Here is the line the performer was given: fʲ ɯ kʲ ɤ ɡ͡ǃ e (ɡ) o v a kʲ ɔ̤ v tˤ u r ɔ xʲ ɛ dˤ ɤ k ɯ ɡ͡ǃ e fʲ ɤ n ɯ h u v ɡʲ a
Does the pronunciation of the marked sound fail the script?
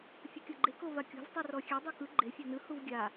yes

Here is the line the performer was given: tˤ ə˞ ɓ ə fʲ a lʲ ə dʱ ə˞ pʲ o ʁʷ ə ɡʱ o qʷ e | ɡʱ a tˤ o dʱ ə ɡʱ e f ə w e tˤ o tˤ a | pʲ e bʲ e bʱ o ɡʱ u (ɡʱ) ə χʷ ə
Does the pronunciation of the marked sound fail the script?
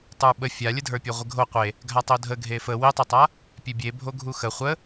yes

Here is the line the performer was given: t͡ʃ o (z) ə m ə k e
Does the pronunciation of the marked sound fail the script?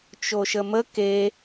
yes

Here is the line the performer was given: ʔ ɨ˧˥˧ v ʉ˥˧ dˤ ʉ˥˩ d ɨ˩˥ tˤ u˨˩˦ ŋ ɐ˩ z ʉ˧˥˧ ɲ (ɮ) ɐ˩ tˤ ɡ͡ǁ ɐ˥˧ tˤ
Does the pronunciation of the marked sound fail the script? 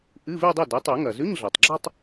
no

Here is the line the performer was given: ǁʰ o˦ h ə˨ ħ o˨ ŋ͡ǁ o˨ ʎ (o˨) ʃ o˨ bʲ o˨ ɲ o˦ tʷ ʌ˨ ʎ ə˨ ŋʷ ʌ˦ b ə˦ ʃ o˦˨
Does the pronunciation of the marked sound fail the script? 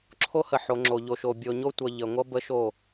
no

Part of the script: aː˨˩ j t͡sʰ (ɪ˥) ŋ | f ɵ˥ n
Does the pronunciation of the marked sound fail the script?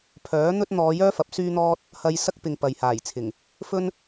yes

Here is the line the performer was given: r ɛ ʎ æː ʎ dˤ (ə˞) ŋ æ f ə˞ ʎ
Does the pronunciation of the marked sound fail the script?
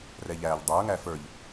no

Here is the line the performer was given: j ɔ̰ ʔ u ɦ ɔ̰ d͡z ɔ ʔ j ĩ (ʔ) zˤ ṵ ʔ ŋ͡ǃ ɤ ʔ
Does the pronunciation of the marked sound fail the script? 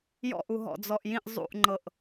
no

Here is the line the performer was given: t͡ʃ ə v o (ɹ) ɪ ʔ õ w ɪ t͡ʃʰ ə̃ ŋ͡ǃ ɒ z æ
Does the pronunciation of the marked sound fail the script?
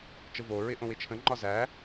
no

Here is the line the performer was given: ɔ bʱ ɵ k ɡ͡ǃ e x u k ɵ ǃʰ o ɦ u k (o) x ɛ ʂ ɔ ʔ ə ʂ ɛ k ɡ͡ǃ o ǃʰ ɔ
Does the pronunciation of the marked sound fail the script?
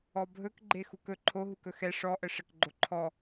yes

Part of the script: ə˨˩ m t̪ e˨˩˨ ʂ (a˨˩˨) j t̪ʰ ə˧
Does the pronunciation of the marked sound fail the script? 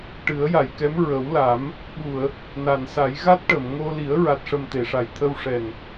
no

